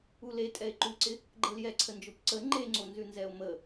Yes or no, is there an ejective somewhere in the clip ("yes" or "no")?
yes